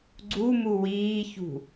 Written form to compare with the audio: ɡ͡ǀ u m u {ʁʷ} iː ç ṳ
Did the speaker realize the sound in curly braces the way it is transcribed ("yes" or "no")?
no